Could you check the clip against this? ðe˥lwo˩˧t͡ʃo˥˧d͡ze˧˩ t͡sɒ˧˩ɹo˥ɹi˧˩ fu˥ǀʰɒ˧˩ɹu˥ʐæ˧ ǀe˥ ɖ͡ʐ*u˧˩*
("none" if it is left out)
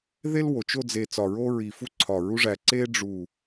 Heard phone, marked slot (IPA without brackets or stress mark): u˧˩